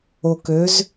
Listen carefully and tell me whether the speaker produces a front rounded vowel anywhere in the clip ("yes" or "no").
yes